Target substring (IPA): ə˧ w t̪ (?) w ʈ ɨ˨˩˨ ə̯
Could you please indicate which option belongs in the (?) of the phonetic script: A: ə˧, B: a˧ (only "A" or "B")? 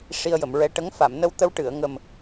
A